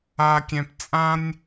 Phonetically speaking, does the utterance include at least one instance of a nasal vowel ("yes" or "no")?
yes